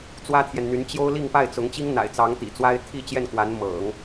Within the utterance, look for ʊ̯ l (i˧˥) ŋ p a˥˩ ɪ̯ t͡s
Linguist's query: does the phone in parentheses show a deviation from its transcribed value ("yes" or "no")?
yes